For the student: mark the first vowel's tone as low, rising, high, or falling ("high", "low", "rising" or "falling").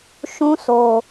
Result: high